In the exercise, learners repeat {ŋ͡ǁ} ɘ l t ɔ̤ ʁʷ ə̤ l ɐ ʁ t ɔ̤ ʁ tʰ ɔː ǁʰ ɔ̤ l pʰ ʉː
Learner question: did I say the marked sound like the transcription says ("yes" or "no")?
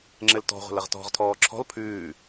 yes